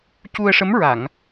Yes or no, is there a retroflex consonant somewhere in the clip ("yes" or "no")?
yes